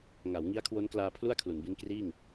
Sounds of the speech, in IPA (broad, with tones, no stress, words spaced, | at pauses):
ŋa˩˦wŋi˦˥a̯kʰwo˦˥nklaː˧ pʰlu˥˩a̯kʰlu˩˦nbi˦˥n kriː˥˩ŋ